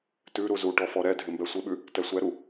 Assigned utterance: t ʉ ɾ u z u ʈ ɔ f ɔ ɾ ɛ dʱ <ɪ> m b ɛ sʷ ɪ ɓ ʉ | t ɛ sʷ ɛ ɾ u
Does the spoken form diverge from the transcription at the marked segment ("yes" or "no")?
no